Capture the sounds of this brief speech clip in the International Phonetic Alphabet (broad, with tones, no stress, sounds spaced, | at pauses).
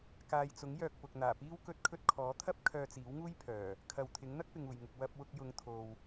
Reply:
k aː˨ j t͡s ʊ˨˥ ŋ j œː˧ k̚ p ʊ˨ k̚ n̪ aː˨˩ p iː˥ w k ɵ˥ t̚ kʰ ɵ˥ t̚ kʰ ɔː˨˥ t̪ʰ ɐ˥ p̚ kʰ œː˧ t͡s iː˨˥ w ŋ uː˥ j pʰ œː˨˩ | kʰ ɐ˨ w t̪ʰ ɪ˨˥ ŋ n̪ ɐ˥ k̚ p ɪ˨ ŋ uː˨˩ j ŋ ʊ˨ k̚ w ɐ˧ p̚ w ʊ˧ k̚ j ʊ˨˧ ŋ t̪ʰ o˨ w